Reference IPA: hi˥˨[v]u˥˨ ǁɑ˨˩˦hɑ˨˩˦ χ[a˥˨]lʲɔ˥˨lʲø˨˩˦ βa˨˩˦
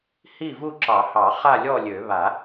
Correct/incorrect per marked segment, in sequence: correct, correct

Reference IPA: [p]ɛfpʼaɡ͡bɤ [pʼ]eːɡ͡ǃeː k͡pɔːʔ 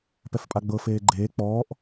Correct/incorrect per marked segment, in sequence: correct, incorrect: f

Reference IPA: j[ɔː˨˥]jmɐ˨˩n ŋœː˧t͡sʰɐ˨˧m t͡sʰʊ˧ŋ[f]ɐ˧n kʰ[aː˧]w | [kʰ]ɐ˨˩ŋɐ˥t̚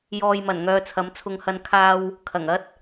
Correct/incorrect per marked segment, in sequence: incorrect: ɔː˨, incorrect: h, correct, correct

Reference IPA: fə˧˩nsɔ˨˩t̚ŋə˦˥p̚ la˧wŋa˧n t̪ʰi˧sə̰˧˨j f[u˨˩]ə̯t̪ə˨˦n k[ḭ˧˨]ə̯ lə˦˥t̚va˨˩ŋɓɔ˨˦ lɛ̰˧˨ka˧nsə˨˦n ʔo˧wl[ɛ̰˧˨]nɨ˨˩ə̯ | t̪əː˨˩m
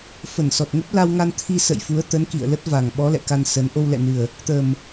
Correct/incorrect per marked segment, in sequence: incorrect: u˨˦, correct, correct

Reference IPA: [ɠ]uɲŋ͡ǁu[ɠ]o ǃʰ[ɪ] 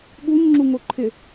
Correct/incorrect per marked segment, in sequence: correct, incorrect: ŋ, correct

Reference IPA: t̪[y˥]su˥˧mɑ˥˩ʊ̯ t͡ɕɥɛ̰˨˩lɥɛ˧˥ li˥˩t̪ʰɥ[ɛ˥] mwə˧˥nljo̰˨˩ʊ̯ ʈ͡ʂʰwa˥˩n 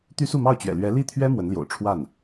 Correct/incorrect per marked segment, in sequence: correct, correct

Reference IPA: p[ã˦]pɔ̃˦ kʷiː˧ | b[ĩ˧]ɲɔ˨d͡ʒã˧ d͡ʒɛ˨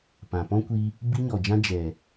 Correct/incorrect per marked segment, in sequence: incorrect: ã˨, incorrect: i˧

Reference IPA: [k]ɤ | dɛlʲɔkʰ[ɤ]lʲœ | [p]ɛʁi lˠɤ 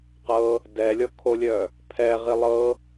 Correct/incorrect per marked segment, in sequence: incorrect: q, incorrect: o, incorrect: pʰ

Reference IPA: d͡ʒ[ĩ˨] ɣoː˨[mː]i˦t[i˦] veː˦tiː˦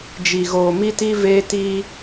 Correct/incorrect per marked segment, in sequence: incorrect: i˨, incorrect: m, correct

